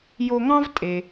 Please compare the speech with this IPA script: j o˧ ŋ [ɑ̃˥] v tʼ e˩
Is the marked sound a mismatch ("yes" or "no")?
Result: no